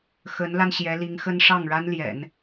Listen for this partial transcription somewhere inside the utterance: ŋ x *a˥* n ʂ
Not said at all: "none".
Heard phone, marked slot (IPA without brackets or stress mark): ə˥